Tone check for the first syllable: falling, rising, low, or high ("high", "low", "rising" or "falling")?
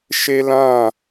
high